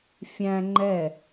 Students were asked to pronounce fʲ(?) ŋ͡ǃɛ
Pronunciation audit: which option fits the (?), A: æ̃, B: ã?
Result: A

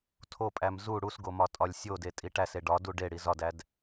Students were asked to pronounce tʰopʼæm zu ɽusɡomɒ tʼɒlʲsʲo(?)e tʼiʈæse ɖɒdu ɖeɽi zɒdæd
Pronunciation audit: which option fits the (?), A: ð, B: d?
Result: B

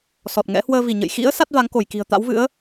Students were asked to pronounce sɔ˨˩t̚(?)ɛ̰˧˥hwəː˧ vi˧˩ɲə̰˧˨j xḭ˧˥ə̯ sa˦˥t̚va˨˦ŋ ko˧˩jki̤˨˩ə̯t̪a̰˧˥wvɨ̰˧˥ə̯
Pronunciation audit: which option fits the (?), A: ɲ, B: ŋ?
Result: B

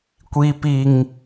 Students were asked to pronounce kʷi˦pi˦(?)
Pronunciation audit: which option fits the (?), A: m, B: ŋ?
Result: B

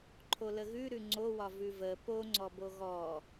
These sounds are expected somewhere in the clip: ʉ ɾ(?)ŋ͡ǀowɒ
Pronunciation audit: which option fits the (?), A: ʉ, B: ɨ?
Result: A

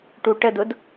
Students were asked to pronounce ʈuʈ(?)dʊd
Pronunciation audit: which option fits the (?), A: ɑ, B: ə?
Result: B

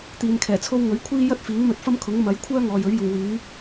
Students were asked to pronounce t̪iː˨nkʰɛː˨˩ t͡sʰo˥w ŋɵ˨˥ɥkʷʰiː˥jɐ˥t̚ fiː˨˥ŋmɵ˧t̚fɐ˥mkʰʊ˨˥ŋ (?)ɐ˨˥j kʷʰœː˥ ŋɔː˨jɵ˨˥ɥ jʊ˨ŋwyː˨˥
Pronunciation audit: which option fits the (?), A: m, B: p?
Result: A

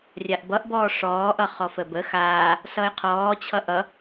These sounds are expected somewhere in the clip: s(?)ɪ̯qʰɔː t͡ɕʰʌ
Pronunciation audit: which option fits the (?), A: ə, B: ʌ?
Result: B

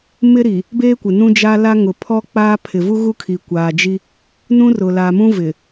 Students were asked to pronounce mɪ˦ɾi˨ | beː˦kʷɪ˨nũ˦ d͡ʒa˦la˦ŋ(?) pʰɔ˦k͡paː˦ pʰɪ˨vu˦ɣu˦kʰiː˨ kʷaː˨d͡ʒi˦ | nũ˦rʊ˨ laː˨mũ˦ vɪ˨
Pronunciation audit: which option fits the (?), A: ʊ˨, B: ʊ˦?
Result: A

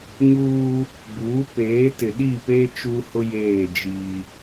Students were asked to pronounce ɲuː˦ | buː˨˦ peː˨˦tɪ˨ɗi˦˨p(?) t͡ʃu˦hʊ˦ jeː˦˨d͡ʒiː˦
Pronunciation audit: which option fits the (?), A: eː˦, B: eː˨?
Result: A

